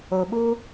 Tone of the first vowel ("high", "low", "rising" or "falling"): low